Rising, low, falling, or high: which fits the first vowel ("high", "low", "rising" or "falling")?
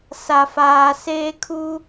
low